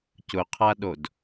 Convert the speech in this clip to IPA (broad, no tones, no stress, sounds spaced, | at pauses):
c ʊ qʰ a ɗ o d